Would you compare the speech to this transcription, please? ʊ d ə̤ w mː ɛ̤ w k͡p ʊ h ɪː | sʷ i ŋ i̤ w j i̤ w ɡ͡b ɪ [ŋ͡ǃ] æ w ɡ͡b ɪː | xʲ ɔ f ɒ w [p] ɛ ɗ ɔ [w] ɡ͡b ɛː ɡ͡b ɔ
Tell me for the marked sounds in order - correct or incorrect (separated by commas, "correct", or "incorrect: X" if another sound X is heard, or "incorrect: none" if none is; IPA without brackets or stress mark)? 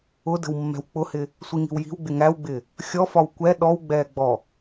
incorrect: ŋ, incorrect: kʷ, correct